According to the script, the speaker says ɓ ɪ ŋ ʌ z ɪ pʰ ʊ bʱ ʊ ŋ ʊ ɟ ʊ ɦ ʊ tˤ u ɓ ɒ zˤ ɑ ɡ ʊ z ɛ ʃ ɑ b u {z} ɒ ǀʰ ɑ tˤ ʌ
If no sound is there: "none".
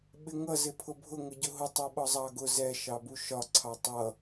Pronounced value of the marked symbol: ʃ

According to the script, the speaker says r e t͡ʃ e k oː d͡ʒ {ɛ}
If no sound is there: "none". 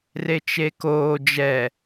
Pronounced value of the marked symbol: ɛ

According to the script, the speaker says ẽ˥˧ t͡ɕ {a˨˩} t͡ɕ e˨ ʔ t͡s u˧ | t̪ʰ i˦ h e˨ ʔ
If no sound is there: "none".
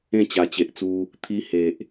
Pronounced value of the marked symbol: a˨˩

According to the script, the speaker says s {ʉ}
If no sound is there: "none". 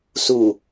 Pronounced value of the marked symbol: u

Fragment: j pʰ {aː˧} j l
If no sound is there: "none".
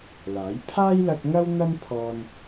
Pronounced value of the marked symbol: aː˥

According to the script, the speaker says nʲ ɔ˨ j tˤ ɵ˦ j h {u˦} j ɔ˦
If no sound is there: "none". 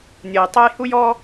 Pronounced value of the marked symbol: u˦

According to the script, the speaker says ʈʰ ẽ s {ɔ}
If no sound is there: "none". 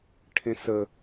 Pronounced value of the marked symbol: ə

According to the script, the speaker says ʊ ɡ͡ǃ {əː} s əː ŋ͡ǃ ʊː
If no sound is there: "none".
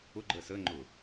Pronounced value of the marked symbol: əː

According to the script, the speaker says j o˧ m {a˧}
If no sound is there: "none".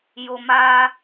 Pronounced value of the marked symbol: a˧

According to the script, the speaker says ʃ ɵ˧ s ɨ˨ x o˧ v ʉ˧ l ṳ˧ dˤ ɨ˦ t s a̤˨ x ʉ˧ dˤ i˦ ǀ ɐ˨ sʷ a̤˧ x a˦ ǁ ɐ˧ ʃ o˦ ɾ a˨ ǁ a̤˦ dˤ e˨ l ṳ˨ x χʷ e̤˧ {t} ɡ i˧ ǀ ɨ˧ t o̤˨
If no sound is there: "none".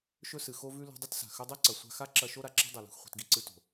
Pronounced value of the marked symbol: t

